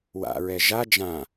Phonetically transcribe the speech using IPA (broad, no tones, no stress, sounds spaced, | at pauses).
w a̰ ɹ ɛ ʒ a d͡ʒ ã